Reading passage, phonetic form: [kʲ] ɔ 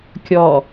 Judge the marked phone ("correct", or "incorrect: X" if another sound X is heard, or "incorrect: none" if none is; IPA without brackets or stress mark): correct